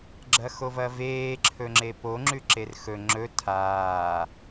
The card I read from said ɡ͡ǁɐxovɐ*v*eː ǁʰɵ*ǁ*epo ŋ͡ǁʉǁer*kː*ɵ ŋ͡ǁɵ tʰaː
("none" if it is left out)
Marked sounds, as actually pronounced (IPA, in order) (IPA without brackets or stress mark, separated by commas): v, ŋ͡ǁ, x